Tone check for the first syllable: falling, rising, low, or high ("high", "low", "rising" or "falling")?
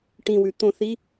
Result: low